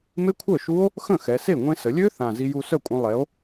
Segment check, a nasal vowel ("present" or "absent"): present